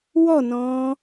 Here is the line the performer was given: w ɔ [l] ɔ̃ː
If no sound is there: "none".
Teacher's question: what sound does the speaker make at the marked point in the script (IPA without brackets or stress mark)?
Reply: n